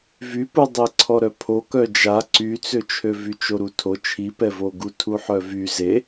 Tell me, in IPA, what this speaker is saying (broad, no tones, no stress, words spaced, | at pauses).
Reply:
vypu dˤiǀʰɔɾœpʰo kœd͡ʒa ǀyt͡søt͡ʃʰø vyt͡ʃoɾutʰo t͡ʃʰipɛvo ɡutʰuħœvy ze